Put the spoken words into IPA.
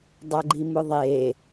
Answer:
dˤ a ɡ͡ǃ i m ʊ ðˤ e

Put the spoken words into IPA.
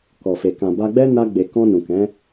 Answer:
k ɔ˨ f e˨ k ã˨ b a˧ ɡ͡b ɛ˦ n a˧ ɡ͡b e˨ k ɔ̃˧ n ũ˨ k ɛ̃˨˦

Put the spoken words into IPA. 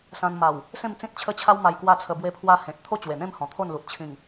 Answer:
s ã˧ n m a˨˩ w | s ẽ˥˧ m t͡s ĩ˦ t̚ t͡ɕʰ ə˦ t͡ɕʰ a˦ w m a˧ j k w a˥˧ t͡sʰ ə˧ b w e˧ pʰ w a˧ h ẽ˨ t̚ t̪ʰ o˥˧ t͡ɕ w e˨˩ n̪ ẽ˥˧ m h ɔ̃˨˩ t̪ʰ o˥˧ n l u˨ t̚ t͡ɕʰ ĩ˨˩ ŋ

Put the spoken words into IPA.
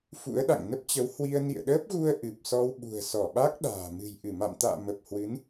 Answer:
f ṵ˧˥ ə̯ ɗ a̰˧˨ ŋ n ə˦˥ p̚ t͡ɕ ə˨˦ w h w i˧ ə̯ n ḭ˧˨ ə̯ ɗ əː˦˥ p̚ ɣ u˧ ə̯ ʔ ɨ˨˩ p̚ s ɔ˧ w ɓ ṳ˨˩ ə̯ s ɔ˧˩ ɓ a˦˥ k̚ ɗ a̤ː˨˩ m ɨ̤˨˩ j ʔ ɨ˧˩ m a̰˧˨ m t̪ a̰ː˧˨ m ə˨˩ p̚ h w ɨ˨˦ n

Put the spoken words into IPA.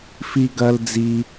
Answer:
f i˧ ɡ ɐ˧ l d͡z i˧

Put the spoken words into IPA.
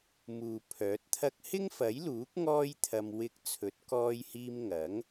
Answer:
m uː˨ pʰ œː˨˥ t̚ t̪ʰ ɐ˥ k̚ h ɪ˥ ŋ f ɐ˨˥ j l uː˨˥ k̚ ŋ ɔː˥ j t̪ʰ ɐ˧ m w ɪ˧ k̚ t͡sʰ ɵ˨˥ t̚ k ɔː˧ j h iː˧ m ŋ ɐ˨˥ ŋ

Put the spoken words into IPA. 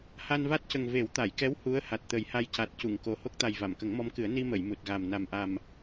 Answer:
h a˧ n v a˦˥ t̚ c ə˨˩ ŋ v e˨˩˦ w t̪ a˨˩˨ j k ɛ˧˥ w h u˧˥ ə̯ h a˨˩ t̚ t̪ ə˨˩˦ j h a˧ j c a˨˩ t̚ c u˨˩˨ ŋ k o˨˩ h o˦˥ k̚ t̪ a˨˩ j v a˨˩˨ m k ə˨˩˦ ŋ m ɔ˧˥ m k ɨ˨˩˦ ə̯ n i˧ m ə˨˩˨ j m u˨˩ t̚ ɣ a˨˩ m n a˨˩ m ʔ a˨˩ m

